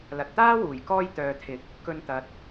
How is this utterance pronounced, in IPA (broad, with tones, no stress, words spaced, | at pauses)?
lɐ˨t̚t̪aː˥wuː˨˩j kɔː˧jt̪œː˨t̪ʰɪ˨˥k̚ | kɵ˧nt̪ɐ˨t̚